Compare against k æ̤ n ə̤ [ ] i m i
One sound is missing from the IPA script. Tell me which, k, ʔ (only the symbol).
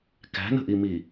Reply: ʔ